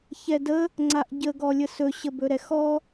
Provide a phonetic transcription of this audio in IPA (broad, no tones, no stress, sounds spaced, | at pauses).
ç ɛ d ə | ŋ͡ǀ a ʔ ɟ ə ɡ ɔ lʲ ə s ɵ ɕ ə b ɵ ɾ ɛ x ɔ